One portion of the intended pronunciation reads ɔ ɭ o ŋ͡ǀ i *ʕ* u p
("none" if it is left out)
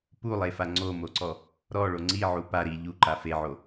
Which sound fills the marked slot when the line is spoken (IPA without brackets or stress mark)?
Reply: ʕ